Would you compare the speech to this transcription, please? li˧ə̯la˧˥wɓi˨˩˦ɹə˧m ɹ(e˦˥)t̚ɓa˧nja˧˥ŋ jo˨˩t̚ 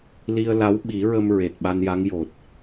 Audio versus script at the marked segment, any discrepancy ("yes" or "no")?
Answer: yes